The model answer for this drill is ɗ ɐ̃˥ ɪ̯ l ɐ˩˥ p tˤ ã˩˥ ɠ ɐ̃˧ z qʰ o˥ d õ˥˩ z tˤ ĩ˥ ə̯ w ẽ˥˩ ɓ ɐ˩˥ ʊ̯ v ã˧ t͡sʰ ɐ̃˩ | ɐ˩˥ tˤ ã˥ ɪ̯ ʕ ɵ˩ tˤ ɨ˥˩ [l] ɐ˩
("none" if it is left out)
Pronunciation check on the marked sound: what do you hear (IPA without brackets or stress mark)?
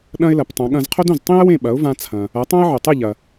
ʎ